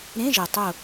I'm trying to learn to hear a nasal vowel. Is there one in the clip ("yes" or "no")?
yes